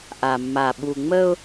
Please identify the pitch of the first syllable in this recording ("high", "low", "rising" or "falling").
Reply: low